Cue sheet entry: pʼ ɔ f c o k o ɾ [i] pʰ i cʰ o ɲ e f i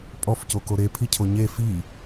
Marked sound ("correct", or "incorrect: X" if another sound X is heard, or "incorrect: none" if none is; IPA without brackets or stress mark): incorrect: e